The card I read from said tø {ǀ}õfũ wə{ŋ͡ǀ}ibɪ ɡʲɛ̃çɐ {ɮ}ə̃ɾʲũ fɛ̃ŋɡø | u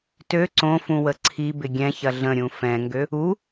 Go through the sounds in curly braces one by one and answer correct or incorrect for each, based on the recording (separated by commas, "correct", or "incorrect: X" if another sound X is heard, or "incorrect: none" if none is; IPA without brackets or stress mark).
correct, incorrect: ǀʰ, correct